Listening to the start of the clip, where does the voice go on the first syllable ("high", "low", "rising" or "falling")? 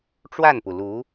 falling